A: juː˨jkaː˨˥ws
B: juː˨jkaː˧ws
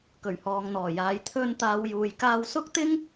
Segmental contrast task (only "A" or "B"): B